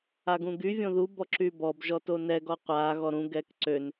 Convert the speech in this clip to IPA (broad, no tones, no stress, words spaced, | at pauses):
aɡũɡy vʲõðu bɔǁybɔb ʒɔtonɛ ɡɔqʷa ɣɔɾũ ɡɛkǀøn